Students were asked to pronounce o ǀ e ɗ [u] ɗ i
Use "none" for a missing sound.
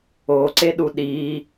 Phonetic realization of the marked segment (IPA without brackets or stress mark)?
u